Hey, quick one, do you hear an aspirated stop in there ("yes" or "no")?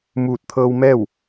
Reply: yes